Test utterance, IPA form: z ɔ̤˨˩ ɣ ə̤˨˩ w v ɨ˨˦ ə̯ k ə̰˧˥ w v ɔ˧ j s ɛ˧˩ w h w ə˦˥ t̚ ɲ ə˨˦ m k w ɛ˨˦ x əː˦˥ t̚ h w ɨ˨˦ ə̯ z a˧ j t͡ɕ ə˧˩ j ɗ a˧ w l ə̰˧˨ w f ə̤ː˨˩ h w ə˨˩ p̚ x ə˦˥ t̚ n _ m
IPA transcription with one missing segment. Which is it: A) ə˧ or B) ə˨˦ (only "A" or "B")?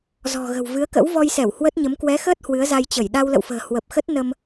A